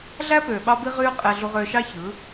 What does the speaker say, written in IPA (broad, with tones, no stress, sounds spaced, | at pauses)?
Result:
ɮ æ˦ p øː˨ ɓ ɑ˦ b i˦ ʁ yː˦ qʼ e˨ ɮ u˨ ʁ øː˨ ʃ ɑ˦ ç ɯː˨˦